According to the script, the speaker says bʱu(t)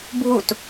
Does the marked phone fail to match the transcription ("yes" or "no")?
no